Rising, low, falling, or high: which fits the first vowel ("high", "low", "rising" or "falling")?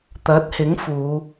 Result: rising